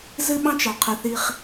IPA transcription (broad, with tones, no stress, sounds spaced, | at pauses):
z ɨ˦ ɓ ɑ̃˦ t͡ʃ ɑ˨ qʰ ɨ˨ θ i˦ χ